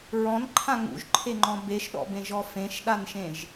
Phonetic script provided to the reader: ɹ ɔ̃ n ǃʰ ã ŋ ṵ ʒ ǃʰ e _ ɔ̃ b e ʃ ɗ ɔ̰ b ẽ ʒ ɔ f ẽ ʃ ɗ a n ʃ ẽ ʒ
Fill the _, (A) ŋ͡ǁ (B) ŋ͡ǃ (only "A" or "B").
B